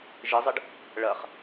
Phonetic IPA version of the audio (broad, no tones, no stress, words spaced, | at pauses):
ʒɪzˤɪɖ | ɭɐχ